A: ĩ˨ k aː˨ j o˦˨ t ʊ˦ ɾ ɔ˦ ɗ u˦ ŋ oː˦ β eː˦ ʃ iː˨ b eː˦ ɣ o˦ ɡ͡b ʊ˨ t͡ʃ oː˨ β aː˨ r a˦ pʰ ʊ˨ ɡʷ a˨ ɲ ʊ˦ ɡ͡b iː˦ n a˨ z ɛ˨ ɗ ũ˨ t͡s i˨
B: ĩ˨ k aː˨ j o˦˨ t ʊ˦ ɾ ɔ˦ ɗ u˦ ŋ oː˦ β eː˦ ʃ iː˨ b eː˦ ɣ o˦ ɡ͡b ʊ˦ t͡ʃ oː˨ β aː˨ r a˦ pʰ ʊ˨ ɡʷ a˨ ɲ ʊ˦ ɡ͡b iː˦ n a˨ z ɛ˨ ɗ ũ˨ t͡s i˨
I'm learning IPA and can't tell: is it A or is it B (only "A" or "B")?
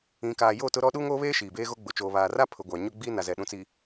A